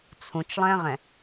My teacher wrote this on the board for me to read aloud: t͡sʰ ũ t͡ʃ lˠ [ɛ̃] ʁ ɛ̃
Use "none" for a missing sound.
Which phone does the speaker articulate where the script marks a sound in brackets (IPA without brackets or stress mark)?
ɛ̃